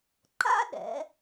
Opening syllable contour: high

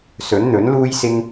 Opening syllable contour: rising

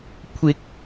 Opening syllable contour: rising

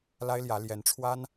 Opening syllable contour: high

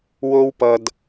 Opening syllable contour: high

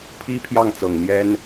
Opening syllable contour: high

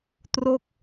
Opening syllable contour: falling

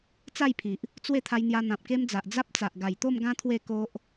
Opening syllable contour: falling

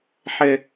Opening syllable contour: high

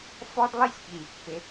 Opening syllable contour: high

